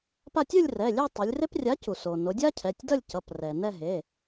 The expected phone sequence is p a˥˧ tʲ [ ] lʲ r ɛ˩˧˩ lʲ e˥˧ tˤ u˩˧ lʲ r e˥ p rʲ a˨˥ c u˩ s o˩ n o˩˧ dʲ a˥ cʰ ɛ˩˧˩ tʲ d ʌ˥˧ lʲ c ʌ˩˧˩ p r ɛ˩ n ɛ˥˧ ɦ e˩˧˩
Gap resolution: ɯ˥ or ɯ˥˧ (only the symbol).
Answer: ɯ˥˧